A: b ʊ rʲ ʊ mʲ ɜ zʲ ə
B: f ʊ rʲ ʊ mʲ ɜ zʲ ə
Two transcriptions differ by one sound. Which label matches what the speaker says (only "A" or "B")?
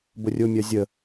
A